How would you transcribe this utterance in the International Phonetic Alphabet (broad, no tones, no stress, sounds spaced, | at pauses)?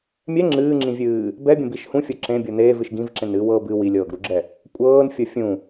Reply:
mʲ ɛ ŋ͡ǁ ɨː ŋ͡ǁ ĩ vʲ ɨː | b ɛ bʲ ə̃ b i ʃ h ũ fʲ ɤ ǁ ẽ bʲ ɤ n eː v ɨ ʃ ɡ ĩ v ǁ ẽ n ɨː w ɤː b ɨ w i lʲ ɤː ɡ ɾ u ɡ͡ǁ ɛ | kʷʼ ɤː n fʲ ɤ fʲ ũ